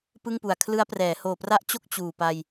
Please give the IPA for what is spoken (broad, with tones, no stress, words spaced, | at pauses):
pɯ˥˩ŋpu˨˩a̯kʰlɯ˦˥a̯prɛː˩˦ hoː˨˩pra˦˥ʔ t͡ɕo˥˩k̚ t͡ɕuː˨˩pa˧j